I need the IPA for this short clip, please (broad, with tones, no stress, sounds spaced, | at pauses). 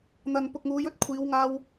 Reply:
n̪ ɐ˨ n p ʊ˨ k̚ ŋ uː˨˧ j ɵ˥ t̚ kʷʰ iː˨˧ w ŋ aː˧ w